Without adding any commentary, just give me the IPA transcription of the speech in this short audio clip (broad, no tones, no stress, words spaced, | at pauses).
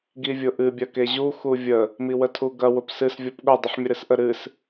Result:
ɡivʲʊʔɨ bʲɐkeʑu xuvʲə | miwətʰuɡɐ wʊpsɨs vʲɔpɠʊ dˤʊħmʲəɾɨsʔə ɾɨs